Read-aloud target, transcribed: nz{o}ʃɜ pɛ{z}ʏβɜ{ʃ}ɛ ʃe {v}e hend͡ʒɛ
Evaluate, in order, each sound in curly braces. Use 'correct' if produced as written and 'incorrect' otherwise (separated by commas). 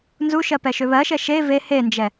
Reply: incorrect, incorrect, correct, correct